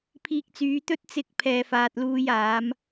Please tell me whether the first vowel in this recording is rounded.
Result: no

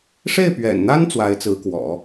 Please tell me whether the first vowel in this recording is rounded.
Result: no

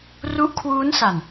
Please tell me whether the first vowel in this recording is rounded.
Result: yes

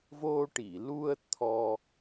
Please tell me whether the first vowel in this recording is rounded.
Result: yes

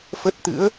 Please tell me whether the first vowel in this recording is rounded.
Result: no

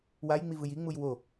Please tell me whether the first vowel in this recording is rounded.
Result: no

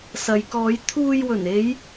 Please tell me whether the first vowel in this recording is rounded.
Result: no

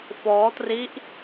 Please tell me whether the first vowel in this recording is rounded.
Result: yes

